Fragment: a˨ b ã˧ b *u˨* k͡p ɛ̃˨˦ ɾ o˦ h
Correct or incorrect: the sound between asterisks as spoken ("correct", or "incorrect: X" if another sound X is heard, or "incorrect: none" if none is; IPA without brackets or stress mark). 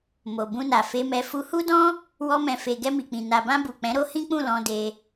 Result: correct